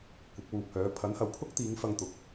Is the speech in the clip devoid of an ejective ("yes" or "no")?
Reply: yes